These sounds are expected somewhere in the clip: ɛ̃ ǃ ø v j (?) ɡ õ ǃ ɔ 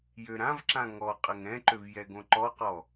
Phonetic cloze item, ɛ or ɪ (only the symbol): ɛ